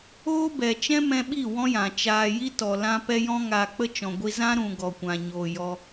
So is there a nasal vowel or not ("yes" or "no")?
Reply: yes